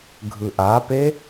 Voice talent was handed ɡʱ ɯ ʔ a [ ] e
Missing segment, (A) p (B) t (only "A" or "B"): A